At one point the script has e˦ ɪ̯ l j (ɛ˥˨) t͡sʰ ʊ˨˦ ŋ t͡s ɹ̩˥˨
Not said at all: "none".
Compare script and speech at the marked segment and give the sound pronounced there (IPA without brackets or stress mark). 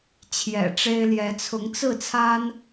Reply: ɛ˨˦